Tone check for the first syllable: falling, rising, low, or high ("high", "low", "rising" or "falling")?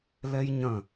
high